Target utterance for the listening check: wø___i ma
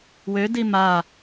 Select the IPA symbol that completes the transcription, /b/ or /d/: d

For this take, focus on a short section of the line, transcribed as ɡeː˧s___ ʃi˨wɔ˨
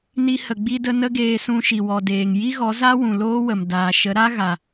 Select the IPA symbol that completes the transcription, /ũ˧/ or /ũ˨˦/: ũ˧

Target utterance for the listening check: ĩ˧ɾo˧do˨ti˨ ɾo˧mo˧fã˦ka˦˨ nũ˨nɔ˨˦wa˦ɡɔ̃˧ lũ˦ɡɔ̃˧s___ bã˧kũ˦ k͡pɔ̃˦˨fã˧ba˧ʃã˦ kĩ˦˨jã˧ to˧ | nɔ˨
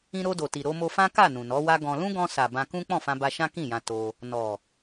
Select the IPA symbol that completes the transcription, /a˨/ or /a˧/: a˨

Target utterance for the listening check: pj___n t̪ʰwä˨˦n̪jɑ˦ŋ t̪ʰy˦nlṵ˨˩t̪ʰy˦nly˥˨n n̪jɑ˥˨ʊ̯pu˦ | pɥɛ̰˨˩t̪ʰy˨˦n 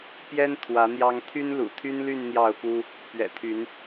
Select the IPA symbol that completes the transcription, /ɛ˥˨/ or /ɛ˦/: ɛ˦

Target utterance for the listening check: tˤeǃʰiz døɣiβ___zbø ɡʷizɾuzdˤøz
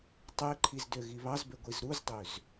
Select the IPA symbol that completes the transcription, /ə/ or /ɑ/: ɑ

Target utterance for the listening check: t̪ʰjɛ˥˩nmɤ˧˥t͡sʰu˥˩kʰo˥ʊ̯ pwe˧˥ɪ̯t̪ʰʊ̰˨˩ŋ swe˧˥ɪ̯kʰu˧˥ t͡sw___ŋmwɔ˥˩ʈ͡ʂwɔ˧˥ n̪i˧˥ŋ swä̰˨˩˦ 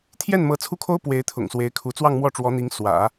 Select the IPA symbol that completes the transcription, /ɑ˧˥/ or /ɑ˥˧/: ɑ˥˧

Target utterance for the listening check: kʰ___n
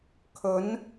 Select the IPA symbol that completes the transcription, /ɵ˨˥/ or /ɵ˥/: ɵ˨˥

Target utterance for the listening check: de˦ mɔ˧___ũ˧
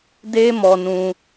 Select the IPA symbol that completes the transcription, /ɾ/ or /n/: n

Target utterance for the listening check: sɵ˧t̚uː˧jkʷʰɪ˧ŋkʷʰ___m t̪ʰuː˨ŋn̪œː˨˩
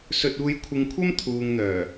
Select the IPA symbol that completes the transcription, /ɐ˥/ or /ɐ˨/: ɐ˥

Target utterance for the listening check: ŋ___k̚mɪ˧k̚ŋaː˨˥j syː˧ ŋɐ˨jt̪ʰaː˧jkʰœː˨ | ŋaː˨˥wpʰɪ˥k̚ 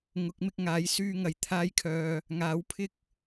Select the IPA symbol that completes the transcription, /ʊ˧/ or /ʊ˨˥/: ʊ˨˥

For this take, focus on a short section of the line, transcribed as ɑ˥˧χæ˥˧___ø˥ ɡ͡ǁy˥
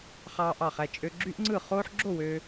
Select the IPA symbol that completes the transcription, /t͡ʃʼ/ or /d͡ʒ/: t͡ʃʼ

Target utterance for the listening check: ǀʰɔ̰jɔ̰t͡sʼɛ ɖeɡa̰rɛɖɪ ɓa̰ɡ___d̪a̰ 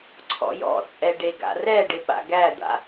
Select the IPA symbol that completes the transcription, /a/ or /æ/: æ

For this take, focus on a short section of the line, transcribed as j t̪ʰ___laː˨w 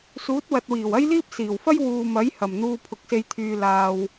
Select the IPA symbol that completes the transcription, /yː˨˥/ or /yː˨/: yː˨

